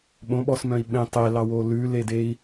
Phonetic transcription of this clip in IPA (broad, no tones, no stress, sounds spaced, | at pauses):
ɓ õ ɓ ɔ s m œ̃ i̯ ɓ ẽ tˤ e l ɑ w o l ʉ l e d e i̯